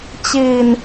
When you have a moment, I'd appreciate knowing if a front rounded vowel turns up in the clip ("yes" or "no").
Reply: no